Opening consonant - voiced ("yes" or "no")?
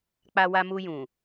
no